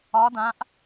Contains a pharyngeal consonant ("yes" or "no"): no